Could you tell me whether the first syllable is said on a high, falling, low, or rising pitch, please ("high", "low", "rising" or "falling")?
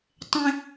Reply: high